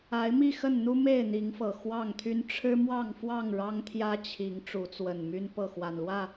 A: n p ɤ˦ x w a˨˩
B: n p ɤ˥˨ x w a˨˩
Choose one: B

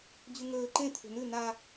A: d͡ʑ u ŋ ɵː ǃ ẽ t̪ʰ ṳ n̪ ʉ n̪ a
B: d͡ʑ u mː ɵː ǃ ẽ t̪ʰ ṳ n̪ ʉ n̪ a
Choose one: A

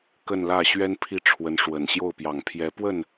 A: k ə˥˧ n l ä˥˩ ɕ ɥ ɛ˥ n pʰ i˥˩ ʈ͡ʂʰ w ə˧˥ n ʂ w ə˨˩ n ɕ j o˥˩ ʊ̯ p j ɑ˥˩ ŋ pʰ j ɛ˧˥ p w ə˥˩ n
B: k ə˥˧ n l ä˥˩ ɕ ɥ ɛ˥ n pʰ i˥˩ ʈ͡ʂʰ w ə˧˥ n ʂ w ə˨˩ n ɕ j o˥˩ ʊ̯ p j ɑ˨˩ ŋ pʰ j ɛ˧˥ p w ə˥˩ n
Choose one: B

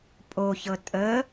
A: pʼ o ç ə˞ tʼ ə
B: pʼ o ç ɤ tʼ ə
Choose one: B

